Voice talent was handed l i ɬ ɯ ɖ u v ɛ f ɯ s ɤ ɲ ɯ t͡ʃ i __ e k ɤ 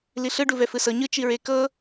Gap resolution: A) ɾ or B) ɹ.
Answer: B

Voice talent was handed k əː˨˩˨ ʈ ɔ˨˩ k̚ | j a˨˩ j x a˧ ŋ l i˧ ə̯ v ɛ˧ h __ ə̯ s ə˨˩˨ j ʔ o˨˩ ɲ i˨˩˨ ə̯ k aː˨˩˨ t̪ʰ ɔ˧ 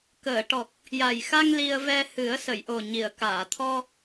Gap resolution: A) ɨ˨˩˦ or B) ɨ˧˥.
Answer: A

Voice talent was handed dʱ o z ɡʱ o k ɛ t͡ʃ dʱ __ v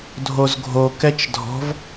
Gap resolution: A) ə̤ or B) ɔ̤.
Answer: B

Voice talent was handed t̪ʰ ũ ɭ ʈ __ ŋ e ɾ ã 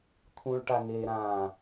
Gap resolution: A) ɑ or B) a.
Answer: B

